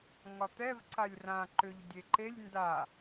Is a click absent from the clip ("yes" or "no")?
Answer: no